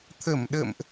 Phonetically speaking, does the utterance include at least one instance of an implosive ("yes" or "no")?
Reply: yes